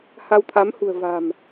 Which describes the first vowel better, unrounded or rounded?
unrounded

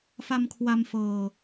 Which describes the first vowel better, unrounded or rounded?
unrounded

